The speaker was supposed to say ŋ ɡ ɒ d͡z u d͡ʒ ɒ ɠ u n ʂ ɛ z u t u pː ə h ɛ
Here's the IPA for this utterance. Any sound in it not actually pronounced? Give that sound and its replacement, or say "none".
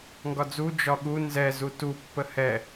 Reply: ʂ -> z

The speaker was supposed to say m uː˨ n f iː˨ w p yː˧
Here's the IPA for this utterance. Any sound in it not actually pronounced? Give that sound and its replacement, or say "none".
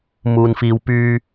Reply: none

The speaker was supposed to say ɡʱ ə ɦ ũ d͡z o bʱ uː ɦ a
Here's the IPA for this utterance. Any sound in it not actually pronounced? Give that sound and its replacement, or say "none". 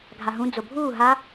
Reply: ə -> a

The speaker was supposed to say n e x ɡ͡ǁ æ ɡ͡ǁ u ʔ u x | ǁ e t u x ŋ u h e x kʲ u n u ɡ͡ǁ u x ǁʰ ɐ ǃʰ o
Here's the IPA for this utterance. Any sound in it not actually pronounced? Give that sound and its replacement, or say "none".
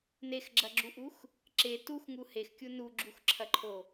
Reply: æ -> ɐ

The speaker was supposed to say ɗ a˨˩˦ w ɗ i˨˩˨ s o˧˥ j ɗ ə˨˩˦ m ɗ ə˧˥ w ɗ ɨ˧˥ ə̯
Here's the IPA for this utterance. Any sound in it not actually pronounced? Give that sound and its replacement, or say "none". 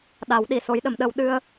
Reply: ɨ˧˥ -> ɨ˧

